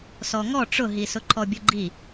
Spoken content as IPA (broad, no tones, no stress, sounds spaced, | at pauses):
s ɔ ŋ ɔ ʈ͡ʂ ʊ ɦ i s ʊ ǃʰ ɔ bʲ ʊ ɡ͡ǃ i